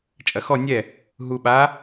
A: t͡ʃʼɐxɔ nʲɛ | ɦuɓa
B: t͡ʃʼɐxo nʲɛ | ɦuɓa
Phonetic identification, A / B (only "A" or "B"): A